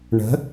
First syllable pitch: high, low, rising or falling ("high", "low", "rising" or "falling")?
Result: rising